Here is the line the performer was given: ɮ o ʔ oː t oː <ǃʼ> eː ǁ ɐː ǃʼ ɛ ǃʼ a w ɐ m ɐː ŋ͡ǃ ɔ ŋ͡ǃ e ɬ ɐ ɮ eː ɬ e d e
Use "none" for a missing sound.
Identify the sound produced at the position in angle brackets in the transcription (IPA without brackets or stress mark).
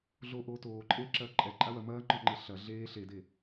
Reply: ǃʼ